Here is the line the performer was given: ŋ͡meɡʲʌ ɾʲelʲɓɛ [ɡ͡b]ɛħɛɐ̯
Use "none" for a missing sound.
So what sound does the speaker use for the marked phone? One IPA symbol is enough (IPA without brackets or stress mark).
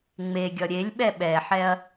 ɓ